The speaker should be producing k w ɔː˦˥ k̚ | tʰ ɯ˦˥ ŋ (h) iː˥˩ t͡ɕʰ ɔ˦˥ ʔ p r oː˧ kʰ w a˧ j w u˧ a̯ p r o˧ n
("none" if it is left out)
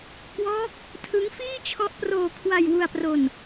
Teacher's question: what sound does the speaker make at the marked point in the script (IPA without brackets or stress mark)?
f